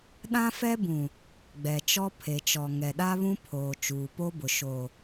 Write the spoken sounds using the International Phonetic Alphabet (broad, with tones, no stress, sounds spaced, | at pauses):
ɗ ã˦ f ɛ˦ b ũ˨ | ɡ͡b ɛ˨ t͡ʃ ɔ˦ pʰ e˨ t͡ʃ ɔ˨ ŋ ɛ˨ ɗ a˦ β ũ˦ pʰ oː˨ t͡ʃ uː˨ p o˦ b ʊ˨ ʃ o˨